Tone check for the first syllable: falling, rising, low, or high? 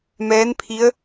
rising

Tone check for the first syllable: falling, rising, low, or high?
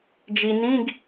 low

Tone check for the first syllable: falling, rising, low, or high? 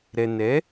low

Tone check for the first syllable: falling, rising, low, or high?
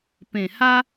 low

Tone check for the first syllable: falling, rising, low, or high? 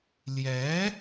rising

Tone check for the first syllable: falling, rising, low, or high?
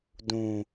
low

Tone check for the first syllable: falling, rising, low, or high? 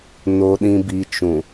low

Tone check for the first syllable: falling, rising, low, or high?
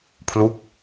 falling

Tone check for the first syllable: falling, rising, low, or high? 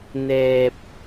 low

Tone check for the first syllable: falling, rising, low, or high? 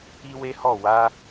high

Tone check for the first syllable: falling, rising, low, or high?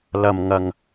low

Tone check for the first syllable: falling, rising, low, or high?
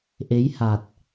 rising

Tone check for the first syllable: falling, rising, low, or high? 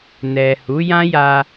low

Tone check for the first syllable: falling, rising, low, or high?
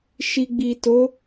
low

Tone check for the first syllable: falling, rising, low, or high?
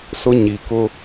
high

